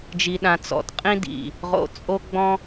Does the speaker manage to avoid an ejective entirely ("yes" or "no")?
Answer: no